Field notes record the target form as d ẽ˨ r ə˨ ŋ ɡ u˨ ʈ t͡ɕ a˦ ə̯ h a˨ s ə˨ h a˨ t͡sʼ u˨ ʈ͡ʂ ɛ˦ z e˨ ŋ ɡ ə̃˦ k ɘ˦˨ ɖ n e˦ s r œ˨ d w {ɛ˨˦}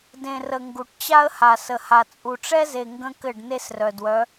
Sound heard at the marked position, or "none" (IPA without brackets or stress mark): œ˨˦